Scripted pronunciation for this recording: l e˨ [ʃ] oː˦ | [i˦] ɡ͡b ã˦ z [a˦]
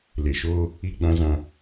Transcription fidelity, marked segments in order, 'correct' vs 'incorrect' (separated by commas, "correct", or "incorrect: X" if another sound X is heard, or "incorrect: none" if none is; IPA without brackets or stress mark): correct, correct, incorrect: ã˦